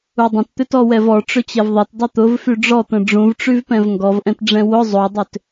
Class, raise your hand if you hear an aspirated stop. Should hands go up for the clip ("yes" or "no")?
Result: no